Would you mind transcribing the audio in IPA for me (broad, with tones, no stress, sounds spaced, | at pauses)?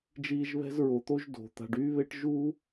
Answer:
d͡ʒ iː˦ ʒ β ɛ̤˥ z ɹ o˨ t̪ o˥ ʒ d o̤˩ t̪ a̤˨ ɖ yː˥ β e˥ ʈ ʒ u˥